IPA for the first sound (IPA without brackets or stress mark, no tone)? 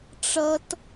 ʈ͡ʂ